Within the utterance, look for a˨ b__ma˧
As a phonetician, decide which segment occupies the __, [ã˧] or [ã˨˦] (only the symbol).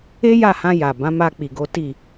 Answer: ã˨˦